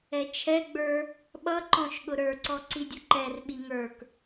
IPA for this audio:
ɛ t͡ʃʰ ɛ ɡ͡b ə˞ | ɓ ʌ ǃ ɔ̃ ʃ ɠ ʊ ɾ ə˞ ǀ ɔ ǀ i dʲ ʊ ǃ ɛ r ɓ i ŋ ə˞ k

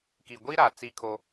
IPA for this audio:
k i˨ ɡʷ i˦ ɾ a˨ t͡s i˦ kʰ o˦

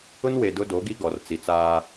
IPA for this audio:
ʊ˦ n w e˨ d ʊ˦ d o˨˦ ɡ i˦ ɡ ɔ˨ r t͡s i˨ t͡s aː˦

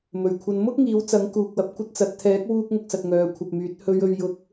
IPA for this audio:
m ɵ˨˩ ɥ kʷʰ ɐ˨ n m ʊ˥ k̚ ŋ iː˨˥ w t͡s ɐ˨˥ ŋ k uː˨ k̚ w ɐ˨˥ p̚ kʷ ɐ˥ t̚ t͡s ɐ˨˥ t̚ t̪ʰ ɛː˨˥ k̚ w uː˧ k̚ ŋ ʊ˥ k̚ s ɐ˧ t̚ ŋ œː˨˧ kʷʰ ɐ˨ p̚ m yː˨˥ t̚ h ɵ˨˧ ɥ ɵ˨ ɥ j ʊ˨˥ k̚

